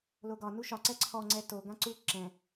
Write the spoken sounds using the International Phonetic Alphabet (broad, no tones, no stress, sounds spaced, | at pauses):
l o ɡ ɒ n u ʃ ɒ ǀ ɛ ǀʰ ɔ ŋ͡ǀ ɛ t o ɡ ã ǀ u ǁ ɛ̃